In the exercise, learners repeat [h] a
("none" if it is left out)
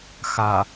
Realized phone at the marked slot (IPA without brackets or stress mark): x